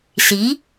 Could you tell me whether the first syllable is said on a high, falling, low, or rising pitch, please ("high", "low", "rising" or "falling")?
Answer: rising